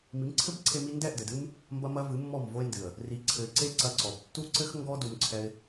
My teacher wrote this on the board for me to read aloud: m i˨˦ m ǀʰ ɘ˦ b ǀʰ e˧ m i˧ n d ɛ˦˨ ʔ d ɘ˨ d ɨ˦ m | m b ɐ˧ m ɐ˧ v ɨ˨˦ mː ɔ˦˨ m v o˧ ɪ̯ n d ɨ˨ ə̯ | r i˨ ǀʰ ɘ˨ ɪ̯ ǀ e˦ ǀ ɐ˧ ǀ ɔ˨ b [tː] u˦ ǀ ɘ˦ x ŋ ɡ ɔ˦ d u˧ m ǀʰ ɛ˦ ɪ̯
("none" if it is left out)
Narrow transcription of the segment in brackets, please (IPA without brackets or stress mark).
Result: tː